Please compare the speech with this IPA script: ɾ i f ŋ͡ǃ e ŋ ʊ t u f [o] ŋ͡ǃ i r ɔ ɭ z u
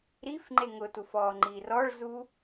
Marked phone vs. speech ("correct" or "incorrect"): incorrect